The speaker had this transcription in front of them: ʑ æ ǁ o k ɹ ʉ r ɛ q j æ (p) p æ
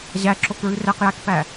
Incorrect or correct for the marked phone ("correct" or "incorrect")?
incorrect